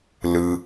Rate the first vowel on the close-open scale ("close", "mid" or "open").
close